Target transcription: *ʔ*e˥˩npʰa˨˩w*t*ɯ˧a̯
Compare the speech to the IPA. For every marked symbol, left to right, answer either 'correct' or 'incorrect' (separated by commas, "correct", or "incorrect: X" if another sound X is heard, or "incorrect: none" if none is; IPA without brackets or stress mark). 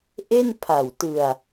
correct, correct